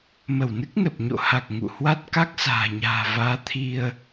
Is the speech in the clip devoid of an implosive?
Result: yes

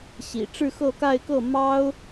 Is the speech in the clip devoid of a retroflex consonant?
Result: no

